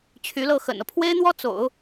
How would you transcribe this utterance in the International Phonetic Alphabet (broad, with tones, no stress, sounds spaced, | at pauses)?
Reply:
t͡ɕʰ y˧˥ l ɤ˥˩ x ə̰˨˩ n ɤ˦ pʰ w e˥ ɪ̯ n̪ w ɔ˥ t͡s o̰˨˩˦ ʊ̯